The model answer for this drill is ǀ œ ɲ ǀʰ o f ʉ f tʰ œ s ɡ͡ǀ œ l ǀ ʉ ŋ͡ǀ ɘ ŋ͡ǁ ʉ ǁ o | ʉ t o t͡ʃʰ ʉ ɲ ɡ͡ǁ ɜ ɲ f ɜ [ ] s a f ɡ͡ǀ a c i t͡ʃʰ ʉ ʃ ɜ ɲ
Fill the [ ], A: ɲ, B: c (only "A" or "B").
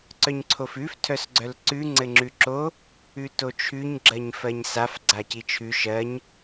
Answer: A